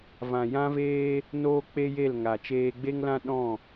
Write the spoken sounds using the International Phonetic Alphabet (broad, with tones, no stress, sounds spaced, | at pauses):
v ã˨ j ã˦ v eː˦ | n oː˦ k͡p e˦ j e˦˨ l ŋ a˨ t͡ʃ eː˧ ɡ͡b e˦ ŋ l ã˦ ɗ ɔ̃˦˨